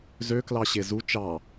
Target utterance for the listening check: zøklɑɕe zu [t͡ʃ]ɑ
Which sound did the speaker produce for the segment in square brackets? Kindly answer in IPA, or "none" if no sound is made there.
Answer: t͡ʃ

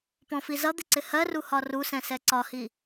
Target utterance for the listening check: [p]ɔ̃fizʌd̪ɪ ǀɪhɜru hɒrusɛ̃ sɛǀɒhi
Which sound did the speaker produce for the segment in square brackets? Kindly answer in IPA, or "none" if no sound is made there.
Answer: p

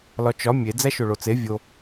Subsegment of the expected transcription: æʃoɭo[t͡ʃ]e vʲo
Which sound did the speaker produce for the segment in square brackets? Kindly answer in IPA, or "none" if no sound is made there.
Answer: t͡s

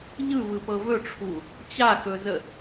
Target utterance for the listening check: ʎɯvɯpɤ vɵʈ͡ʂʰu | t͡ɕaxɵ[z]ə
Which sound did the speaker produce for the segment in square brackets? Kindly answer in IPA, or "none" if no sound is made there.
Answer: z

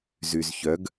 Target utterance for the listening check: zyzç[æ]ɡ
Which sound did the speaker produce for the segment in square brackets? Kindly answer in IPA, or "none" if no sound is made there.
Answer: œ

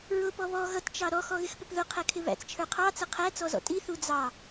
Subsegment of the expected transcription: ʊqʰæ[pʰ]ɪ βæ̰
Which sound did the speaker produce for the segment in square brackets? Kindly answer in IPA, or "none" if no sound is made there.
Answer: kʰ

